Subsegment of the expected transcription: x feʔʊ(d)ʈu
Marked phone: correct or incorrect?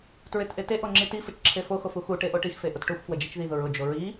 incorrect